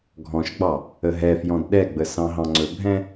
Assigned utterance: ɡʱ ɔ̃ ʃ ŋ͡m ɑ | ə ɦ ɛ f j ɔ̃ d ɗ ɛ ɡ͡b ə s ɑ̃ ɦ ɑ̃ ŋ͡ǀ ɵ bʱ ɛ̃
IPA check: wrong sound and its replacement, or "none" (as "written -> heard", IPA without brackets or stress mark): ŋ͡m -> ɡ͡b